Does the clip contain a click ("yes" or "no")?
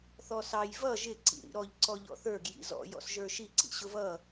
yes